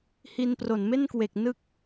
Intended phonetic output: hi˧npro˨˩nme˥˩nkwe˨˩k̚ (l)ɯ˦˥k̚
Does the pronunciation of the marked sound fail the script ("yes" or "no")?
yes